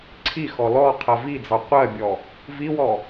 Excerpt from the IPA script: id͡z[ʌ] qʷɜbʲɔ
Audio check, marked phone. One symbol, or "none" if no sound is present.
ɑ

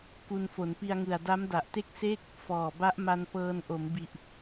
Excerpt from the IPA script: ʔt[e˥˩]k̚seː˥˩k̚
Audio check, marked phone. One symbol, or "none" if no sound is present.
e˥˩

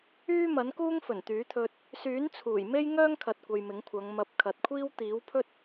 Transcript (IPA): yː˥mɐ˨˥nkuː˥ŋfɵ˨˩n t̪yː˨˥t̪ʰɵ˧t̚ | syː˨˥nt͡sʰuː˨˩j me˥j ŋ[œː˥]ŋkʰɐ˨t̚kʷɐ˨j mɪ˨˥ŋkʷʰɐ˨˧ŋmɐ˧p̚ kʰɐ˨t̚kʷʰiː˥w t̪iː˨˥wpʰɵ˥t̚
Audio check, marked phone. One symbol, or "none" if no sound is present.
œː˥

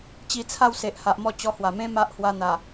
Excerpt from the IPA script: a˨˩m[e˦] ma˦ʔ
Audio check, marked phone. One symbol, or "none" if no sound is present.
ẽ˦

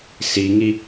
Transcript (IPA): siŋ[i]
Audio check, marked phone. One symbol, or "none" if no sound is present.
i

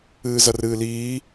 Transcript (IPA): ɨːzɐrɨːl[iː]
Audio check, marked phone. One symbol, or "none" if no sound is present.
iː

